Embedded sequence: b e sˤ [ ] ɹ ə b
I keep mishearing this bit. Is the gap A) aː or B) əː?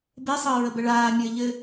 B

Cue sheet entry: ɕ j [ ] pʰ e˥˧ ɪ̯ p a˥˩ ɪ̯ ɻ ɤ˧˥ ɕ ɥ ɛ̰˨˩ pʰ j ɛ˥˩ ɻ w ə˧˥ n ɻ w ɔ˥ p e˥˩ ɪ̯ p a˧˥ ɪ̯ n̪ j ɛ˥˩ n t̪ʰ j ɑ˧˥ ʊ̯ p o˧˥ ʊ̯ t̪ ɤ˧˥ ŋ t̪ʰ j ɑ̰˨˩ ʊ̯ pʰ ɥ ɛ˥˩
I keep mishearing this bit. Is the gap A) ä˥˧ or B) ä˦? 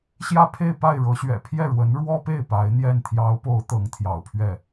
A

